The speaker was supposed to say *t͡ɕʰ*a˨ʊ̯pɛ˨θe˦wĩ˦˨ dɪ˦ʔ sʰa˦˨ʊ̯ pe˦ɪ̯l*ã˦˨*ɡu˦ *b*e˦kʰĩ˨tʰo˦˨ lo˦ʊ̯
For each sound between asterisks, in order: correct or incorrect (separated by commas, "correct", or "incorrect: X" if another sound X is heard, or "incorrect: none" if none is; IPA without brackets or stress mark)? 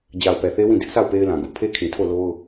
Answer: incorrect: d͡ʑ, incorrect: ã˨, incorrect: pʰ